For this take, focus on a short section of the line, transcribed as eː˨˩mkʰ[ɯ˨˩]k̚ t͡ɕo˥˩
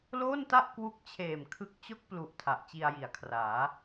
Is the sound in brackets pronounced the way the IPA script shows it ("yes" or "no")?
no